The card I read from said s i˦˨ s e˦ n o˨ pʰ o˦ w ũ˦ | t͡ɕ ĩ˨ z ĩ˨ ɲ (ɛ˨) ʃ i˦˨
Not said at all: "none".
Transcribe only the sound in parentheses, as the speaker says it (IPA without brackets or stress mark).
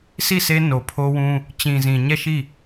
ɛ˦˨